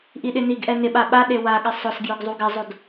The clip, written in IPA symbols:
ʔ i ɗ ɪ n i ɡ ʔ ɛ n ɪ ɓ a ɓ a ɗ e w a ɠ ɪ sˤ ʊ s ɡ j ʊ ɡ zˤ u ɡ ɪ zˤ o d

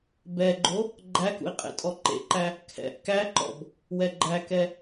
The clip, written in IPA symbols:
b ɛ ɡ͡ǃ o | ɡ͡ǃ æ k ṵ i̯ qʼ ḛ tʼ ɔ ǃ ḛ ǃ æ | kʰ ɛ̰ ʔ k æ ǃ ɔ̰ b | w ɛ ɡ͡ǃ æ k ɛ

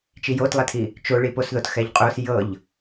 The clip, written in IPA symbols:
t͡ʃ i j o t lˠ ɛ tʰ i | t͡ʃ o ɭ i p o s ð o t x ɛ ʎ qʼ o s j ɤ ʎ

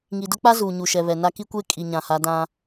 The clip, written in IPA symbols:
ŋ i˨ d ʊ˦ k͡p a˦ z uː˨ ɲ u˨ ʃ ɛ˨ β ɛ˨ n a˦ k i˦ kʷ eː˦ kʼ i˨ ɲ ã˨ h a˨˦ d ã˦

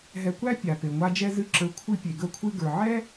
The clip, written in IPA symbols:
ɦ ɛ˧ kʷ æ˥ pʲ a˩ p e˩ ŋʷ a˧ d͡ʒ ɛ˧ z ɨ˥˩ ǁ ə˞˩˥ kʷʰ ɨ˧ pʲ e˩ ɡ ə˧ kʷʰ ɨ˧ ɡ ə˞˩ ʕ ɛ˥

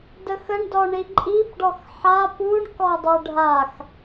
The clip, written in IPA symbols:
d ə x ə ɳ d ɔ ɳ i ǃʼ i b ɖ ɔ x ħ a p u ɳ k ɔ dˤ u ɖʱ a x

